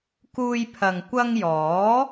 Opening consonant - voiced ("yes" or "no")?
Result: no